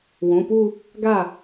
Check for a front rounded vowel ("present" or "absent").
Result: absent